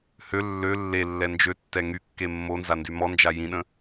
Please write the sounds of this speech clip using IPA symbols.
h ø lː ø lː e lː ɛ n d͡ʒ ø tː ɛ ŋ y kː e mː o n z a n d y m ɔ n d͡ʒ a j ĩ ɗ ə̃

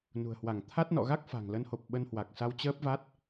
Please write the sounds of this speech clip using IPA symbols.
n ṳ˨˩ ə̯ h w a˧˩ ŋ t̪ʰ a˦˥ t̚ n ɔ̰˧˨ ɣ a˦˥ k̚ f a̤˨˩ ŋ l ə˨˦ n h o˨˩ p̚ ɓ ə˧ n h w a˨˩ k̚ s a˧ w t͡ɕ əː˦˥ p̚ v a˦˥ t̚

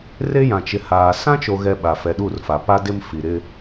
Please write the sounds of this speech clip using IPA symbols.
r e˦ j ã˨ t͡ʃ ɪ˨ h aː˨ s ã˦ t͡ʃ o˨ ɣ ɛ˨ ɓ a˨ f ɛ˨ ɗ u˦˨ r f a˨ p a˦ d ɪ˦ m f i˨ ɾ ɪ˦

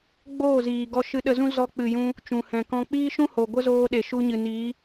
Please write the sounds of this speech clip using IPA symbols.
ɡ͡b oː˦˨ z iː˨ ɡ ɔ˧ ʃ ɨ˧ ɗ ə˧ z ũ˦ z ɔ˧ k͡p ɨ˨ j ũ˧ | t͡ʃ ũ˨ h ɛ̃˨ k ɔ̃˧ k͡p iː˦ ʃ ũ˦ h o˨ ɡʷ ə˦ z oː˧ ɗ e˨ ʃ u˧ ɲ ɨ˨ n iː˨˦

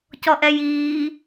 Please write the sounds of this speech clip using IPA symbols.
c ɔ ʔ ɛ j iː

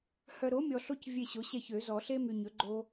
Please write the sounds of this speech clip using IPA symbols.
h œ˨ ɾ o˩˥ mʲ ɔ˨ ɬ o˦ c vʲ e˦˨ ɕ o˩˥ ɕ ɛ˦˨ ç ø˨˩˦ z ɔ˨˩˦ ɬ e˦ m y˨ ɲ ɵ˩˥ ɡ͡ǃ o˦

